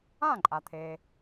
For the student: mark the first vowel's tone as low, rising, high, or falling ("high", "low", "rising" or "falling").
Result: falling